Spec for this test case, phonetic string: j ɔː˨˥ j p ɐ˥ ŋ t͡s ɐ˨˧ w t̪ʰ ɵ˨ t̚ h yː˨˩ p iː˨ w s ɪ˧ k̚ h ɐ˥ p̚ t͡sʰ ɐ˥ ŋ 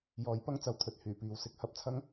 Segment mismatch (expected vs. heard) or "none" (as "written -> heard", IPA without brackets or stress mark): none